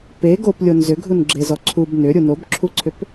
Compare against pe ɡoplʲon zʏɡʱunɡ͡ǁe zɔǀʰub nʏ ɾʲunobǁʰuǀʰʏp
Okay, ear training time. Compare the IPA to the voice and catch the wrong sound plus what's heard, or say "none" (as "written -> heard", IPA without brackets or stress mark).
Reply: none